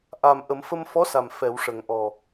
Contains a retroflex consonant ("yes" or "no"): yes